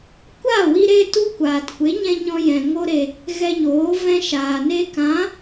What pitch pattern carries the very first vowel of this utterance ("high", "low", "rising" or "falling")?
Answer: falling